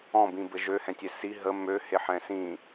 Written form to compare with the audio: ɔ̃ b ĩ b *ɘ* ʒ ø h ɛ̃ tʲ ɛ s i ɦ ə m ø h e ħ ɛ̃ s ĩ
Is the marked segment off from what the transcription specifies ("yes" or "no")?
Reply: no